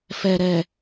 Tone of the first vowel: low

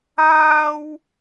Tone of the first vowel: high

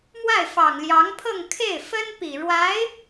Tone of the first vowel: falling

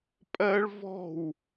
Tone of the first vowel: high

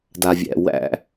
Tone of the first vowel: low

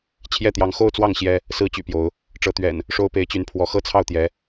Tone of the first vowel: falling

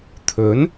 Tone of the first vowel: rising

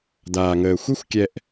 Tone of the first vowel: low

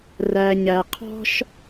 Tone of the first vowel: low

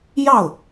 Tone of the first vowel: falling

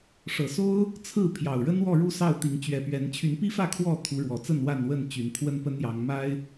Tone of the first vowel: low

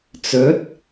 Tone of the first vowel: rising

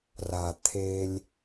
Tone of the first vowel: low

